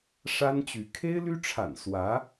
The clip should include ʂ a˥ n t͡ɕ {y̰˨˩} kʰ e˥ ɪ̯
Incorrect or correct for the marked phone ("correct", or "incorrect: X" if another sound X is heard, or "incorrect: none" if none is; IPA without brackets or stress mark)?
incorrect: y˧˥